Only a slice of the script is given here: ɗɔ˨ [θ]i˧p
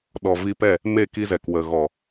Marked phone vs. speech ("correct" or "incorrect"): incorrect